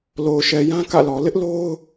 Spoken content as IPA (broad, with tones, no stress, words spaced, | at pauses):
lo˨ʊ̯ʃɛ˨jã˦ kä̰˦˨lɔ˨ lɪ˦ʔlo˦ʊ̯